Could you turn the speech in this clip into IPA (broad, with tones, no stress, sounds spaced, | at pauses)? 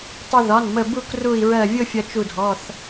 tˤ ʌ˧ ð ɒ˩˧˩ n m ə˧˩ b u˥˧ k r u˧˩ i̯ ɹ ɜ˧˩ vʲ ʊ˥˧ fʲ ʌ˧ t͡ʃ u˧˩ dʱ ɔ˩˧˩ θ